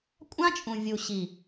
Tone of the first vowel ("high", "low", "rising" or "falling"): high